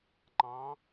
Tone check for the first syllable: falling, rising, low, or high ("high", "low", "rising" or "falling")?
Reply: rising